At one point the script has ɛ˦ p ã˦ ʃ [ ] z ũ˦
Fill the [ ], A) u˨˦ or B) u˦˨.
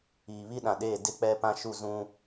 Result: B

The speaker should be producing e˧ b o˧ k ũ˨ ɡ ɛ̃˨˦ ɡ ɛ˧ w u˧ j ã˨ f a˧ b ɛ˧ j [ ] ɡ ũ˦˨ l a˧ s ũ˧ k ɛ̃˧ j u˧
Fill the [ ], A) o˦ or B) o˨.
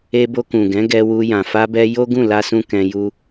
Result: A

